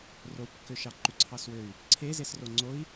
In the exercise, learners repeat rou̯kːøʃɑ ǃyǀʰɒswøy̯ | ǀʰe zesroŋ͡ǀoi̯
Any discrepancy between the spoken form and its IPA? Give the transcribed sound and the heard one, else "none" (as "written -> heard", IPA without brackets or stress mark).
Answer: ɒ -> ɑ